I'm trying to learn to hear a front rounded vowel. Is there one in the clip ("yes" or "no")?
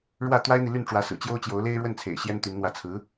yes